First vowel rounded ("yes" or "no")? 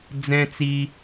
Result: no